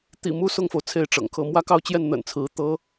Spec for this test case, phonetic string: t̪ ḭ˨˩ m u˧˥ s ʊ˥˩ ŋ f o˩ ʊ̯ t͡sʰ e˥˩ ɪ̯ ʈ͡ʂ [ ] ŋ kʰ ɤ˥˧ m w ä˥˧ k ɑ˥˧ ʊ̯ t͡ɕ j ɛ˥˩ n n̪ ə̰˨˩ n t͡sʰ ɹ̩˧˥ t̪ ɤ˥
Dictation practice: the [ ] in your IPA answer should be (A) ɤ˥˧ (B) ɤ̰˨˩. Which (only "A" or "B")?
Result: B